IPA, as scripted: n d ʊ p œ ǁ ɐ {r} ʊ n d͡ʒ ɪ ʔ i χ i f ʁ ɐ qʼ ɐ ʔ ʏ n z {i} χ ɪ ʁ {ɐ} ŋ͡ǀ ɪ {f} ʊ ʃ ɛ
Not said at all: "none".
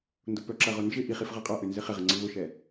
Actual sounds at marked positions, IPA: ʁ, ɪ, ɐ, v

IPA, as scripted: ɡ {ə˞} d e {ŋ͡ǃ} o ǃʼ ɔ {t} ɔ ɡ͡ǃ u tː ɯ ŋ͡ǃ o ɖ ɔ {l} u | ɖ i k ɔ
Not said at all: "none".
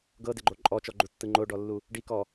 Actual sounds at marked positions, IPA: ɤ, ɡ͡ǃ, t͡ʃ, lː

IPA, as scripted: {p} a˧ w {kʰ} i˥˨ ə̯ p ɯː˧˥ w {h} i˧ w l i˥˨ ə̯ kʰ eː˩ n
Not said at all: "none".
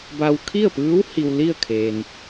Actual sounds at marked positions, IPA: b, kʰ, h

